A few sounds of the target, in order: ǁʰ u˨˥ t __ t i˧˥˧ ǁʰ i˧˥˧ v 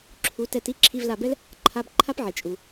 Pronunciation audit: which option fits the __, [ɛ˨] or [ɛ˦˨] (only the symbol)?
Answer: ɛ˦˨